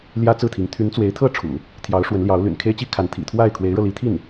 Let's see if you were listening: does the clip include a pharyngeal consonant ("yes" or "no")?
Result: no